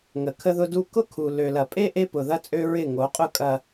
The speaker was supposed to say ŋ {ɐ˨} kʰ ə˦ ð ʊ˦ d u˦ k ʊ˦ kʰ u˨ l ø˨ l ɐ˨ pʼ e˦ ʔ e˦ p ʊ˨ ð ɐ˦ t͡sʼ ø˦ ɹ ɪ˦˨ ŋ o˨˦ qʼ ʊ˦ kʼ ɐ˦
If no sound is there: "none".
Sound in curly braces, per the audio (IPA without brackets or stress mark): ə˨